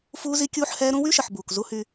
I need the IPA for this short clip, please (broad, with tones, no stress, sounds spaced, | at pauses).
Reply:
f uː˦ z i˦ kʲ uː˦ ħ h ɛː˦ ɾ ũ˦ w y˦ ʃ ə˨ ħ b uː˨ k z u˦ h y˦